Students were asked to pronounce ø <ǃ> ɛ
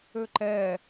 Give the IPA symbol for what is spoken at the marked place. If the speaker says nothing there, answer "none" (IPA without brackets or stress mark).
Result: ǃ